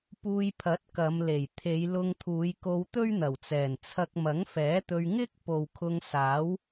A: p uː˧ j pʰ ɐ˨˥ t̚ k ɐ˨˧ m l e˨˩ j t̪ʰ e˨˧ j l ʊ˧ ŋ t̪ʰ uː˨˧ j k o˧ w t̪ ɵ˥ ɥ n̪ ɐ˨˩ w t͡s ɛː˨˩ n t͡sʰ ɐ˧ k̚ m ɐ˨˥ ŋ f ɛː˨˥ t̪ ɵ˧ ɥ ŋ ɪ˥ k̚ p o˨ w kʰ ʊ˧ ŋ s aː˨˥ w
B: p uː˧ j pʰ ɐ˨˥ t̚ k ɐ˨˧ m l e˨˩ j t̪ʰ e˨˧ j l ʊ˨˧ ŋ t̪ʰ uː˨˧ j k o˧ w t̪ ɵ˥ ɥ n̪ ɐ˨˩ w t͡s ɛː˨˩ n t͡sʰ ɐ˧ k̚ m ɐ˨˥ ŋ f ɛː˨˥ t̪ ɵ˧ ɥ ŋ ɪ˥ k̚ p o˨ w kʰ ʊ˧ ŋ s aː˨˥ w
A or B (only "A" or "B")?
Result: A